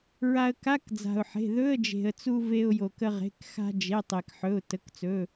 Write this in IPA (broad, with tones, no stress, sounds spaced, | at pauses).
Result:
ɹ a˧ ə̯ k a˧˥˧ k d͡z a̤˩ ʊ̯ ħ e̤˩˧˩ ð ɵ˧˥˧ ə̯ d͡ʒ e̤˩ ə̯ t͡s u˧ v e˧ ʊ̯ j o˩ k ə˧ ʁ e̤˩˧˩ k x a̤˧ d͡ʒ e˩˧˩ tˤ e˩ k ħ ɵ˩˧˩ ʊ̯ t ə˩˧˩ k t͡s ɵ˩˧˩